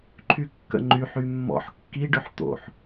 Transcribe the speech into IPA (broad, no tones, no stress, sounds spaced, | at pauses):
ǃʰ y kː ə̰ ŋ͡ǃ y ħ y mː ɔ̰ ħ kː i ɖ ʏ ħ t̪ o̰ ħ